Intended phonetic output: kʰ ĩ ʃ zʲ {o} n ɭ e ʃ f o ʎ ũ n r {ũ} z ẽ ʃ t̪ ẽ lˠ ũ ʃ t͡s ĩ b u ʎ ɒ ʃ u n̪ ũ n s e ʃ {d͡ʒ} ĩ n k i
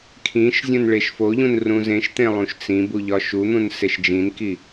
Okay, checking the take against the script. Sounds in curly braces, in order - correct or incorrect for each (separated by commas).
incorrect, correct, correct